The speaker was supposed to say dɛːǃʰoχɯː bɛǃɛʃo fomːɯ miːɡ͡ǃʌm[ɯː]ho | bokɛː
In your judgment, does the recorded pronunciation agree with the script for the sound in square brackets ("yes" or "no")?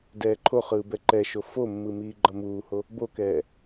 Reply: no